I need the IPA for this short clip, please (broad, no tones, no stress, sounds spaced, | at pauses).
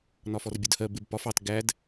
n ɒ f ɔ r bʲ ʊ d h ɜ b ɪ b p ɒ f ɑ t ɡ æ d